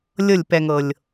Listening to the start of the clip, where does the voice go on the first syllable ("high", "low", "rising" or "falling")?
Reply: falling